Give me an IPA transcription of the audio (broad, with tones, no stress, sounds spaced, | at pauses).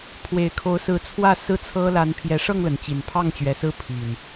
pʰ w e˨˩ ɪ̯ kʰ o˨˦ ʊ̯ s ɹ̩˨˦ t͡sʰ w ä˥˨ s ɹ̩˥˨ t͡sʰ ɤ˦ l a˨˦ n pʰ j ɛ˨˦ ʂ ɤ˥˨ ŋ l ə˩ n t͡ɕ i˨˩ n pʰ ɑ˥˨ ŋ t͡ɕ ɥ ɛ˨˦ s ɹ̩˦ pʰ i˨˩ n